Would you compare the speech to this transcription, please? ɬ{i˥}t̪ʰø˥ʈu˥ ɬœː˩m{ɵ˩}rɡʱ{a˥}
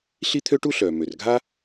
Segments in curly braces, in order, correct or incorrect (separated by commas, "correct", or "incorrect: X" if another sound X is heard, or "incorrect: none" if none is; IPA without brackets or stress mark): correct, incorrect: ø˩, correct